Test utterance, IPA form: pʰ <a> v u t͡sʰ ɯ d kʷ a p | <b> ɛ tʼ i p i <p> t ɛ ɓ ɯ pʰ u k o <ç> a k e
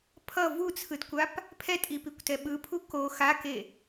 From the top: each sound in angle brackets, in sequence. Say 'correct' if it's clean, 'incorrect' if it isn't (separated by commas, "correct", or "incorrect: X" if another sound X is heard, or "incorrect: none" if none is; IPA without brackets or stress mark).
incorrect: ʌ, incorrect: pʰ, incorrect: kʷ, incorrect: x